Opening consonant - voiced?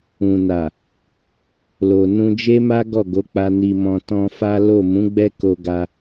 yes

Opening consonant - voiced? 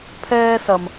no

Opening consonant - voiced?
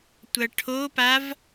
no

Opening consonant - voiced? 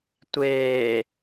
no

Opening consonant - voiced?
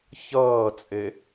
no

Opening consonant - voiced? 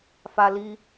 no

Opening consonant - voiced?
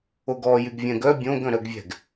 yes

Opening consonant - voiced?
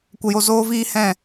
no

